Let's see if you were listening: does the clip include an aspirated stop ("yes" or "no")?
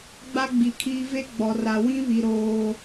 yes